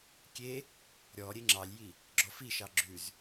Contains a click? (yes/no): yes